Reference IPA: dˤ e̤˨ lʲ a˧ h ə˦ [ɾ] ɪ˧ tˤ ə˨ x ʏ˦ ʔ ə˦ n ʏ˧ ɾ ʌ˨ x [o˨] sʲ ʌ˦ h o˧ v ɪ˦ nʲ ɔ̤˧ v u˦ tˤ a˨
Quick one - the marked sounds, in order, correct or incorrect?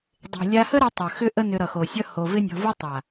correct, correct

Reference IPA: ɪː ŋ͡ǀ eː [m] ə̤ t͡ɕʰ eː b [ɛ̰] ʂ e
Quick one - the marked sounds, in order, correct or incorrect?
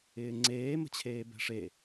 correct, incorrect

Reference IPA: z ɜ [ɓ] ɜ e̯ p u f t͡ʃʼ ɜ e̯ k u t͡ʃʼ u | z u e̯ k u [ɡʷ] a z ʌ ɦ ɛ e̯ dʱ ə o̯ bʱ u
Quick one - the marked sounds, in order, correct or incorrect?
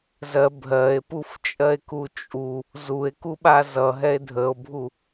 incorrect, incorrect

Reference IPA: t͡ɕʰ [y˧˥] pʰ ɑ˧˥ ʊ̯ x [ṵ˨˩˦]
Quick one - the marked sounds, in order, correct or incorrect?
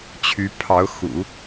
correct, correct

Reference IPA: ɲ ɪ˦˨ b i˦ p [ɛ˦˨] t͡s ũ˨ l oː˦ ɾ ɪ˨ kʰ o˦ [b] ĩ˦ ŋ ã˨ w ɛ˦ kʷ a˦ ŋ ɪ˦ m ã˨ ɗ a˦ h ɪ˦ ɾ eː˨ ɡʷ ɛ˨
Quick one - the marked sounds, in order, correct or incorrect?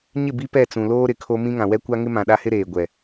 correct, incorrect

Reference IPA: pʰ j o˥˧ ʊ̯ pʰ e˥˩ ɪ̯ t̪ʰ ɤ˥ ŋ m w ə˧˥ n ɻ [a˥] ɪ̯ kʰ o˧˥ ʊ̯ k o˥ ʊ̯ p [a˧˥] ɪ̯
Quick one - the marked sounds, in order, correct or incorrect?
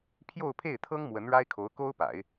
correct, incorrect

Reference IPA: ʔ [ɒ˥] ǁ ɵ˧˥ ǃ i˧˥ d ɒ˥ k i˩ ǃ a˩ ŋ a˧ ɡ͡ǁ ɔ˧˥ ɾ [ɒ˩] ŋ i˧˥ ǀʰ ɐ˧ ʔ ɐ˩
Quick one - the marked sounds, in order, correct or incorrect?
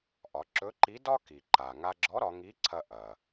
incorrect, incorrect

